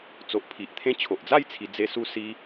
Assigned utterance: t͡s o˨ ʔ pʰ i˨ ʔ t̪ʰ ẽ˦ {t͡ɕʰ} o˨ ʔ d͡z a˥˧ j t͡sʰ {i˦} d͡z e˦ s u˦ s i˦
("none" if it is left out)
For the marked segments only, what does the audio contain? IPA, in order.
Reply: t͡ɕʰ, i˧

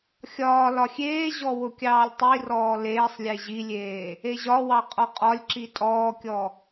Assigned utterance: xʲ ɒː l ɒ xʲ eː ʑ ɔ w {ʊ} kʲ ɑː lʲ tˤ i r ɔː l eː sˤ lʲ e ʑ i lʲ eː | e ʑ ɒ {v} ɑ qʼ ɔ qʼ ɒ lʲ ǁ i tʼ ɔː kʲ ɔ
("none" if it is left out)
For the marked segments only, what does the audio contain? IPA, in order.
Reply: ʊ, w

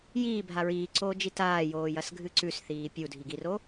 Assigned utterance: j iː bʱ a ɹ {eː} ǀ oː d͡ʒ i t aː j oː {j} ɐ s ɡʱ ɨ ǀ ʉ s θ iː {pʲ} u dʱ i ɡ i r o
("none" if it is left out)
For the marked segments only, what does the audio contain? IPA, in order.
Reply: iː, j, pʲ

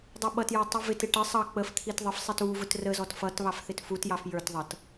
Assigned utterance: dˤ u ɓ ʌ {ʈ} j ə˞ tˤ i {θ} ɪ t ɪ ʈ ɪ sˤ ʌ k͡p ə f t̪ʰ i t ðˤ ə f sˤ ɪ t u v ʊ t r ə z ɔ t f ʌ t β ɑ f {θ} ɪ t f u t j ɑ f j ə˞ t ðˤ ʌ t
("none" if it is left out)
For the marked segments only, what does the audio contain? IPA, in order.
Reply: t, v, θ

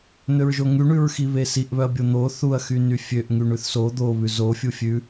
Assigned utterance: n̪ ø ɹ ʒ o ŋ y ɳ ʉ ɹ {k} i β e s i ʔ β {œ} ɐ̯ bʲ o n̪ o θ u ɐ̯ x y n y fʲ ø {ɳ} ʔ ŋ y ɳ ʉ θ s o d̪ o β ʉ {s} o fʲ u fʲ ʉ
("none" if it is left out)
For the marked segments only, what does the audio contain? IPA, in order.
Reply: x, œ, none, z

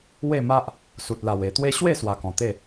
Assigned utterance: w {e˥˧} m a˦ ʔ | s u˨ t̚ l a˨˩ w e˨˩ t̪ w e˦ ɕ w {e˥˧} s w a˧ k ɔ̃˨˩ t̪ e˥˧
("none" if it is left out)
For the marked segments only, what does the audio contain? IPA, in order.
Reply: e˥˧, e˥˧

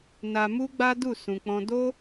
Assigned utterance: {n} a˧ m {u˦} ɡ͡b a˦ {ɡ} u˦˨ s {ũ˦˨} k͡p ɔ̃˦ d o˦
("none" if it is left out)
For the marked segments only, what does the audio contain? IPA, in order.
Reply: n, u˦, d, ũ˧

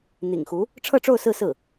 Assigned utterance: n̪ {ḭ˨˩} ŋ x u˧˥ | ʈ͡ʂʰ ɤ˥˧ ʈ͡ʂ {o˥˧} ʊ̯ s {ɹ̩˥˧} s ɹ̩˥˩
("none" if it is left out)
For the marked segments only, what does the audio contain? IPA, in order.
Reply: ḭ˨˩, o˥˧, ɹ̩˥˧

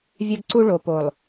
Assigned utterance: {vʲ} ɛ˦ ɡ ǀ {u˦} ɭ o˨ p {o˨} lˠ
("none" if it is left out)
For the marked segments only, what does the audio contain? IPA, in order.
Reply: vʲ, u˦, o˨

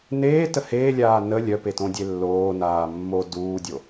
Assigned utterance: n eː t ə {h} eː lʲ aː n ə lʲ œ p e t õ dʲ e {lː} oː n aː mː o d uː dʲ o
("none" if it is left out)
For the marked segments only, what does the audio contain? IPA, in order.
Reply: h, lː

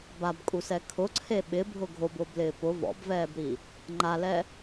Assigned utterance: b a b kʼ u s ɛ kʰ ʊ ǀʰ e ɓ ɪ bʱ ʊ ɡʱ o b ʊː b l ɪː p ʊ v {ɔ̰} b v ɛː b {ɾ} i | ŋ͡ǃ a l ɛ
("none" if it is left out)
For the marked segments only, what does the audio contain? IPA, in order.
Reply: ɔ̰, ɾ

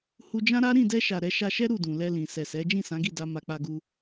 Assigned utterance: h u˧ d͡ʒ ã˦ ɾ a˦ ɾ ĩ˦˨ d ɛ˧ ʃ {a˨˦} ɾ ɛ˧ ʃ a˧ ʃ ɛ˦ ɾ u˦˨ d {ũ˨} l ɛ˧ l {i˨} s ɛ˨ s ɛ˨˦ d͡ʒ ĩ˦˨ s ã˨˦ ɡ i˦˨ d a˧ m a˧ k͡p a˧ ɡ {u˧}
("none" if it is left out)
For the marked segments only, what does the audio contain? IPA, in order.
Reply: a˨, ũ˨, ĩ˨, u˧

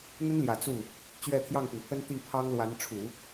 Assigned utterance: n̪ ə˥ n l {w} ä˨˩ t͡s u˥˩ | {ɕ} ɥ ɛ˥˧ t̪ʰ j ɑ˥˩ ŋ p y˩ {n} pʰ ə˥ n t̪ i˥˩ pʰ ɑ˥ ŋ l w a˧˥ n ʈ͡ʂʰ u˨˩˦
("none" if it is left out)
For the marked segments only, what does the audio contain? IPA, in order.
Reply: j, t͡ɕ, n

